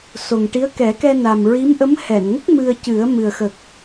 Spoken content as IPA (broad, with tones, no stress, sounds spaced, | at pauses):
s o˨˩ ŋ ʈ i˧˥ ə̯ k ɛ˨˩˦ k ɛ˧ n a˨˩ m ɹ i˧˥ m ʔ ə˧˥ m h ɛ˨˩˨ n ŋ ə˦˥ k̚ m ɨ˧ ə̯ c ɨ˨˩˦ ə̯ m ɨ˨˩ ə̯ x ə˨˩ k̚